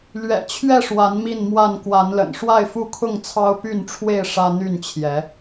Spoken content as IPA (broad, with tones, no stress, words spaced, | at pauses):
lɥɛ̰˨˩t͡ɕʰɥɛ˥˨ʂwa˨˦n mi˥˨nmwa˥˨n kwa˨˦nlə̰˨˩nʂwa˥˨ɪ̯fu˦ kʰʊ˥˨ŋt͡sʰɑ˦ʊ̯py˥˨nʈ͡ʂʰwe˥˨ɪ̯ ʂä˦n̪y˥˨nt͡ɕʰjɛ˨˦